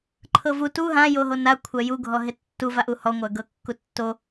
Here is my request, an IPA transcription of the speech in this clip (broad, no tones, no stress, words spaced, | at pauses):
ǃʰɤvu tu ɦãjoɦo na kʷʰæjuɡʱɔ ɦɪtːuvaʔu hɔŋʷæ ɡɤkːutːo